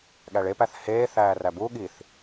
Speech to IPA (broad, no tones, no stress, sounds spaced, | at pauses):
ɠ æ ɭ e p æ θ h eː θ æː r æ b u ɠ i θ